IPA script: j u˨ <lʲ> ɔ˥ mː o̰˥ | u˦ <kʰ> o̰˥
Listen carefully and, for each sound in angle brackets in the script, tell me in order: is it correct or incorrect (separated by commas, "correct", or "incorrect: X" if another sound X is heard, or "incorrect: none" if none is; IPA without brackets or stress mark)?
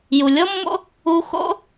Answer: correct, incorrect: x